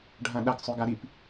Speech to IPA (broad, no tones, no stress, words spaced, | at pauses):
ɖʱãɗɐɡ sˤʉɡaɾip